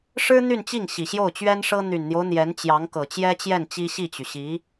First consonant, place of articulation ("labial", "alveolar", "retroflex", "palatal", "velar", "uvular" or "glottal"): retroflex